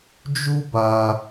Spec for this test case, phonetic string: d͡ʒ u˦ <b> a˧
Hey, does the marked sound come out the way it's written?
yes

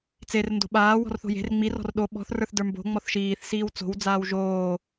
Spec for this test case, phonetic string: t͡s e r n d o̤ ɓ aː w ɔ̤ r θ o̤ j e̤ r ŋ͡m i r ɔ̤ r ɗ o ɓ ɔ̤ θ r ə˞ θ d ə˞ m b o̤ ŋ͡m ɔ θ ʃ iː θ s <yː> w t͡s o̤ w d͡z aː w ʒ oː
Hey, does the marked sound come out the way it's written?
no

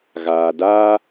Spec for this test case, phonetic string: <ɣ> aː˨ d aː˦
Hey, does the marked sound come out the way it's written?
yes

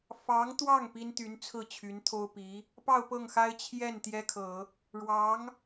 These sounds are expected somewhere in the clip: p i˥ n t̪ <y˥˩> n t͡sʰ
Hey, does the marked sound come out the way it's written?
no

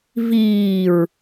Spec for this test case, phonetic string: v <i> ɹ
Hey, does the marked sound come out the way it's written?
no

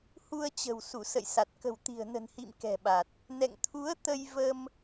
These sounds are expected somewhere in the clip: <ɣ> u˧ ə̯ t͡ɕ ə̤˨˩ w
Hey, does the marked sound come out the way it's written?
no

